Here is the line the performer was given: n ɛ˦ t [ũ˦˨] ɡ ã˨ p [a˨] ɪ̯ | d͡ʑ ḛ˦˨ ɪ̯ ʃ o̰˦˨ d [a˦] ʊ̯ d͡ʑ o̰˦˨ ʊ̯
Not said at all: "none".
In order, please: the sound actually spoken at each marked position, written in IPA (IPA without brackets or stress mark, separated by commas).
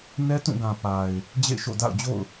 ũ˦˨, a˨, a̰˦˨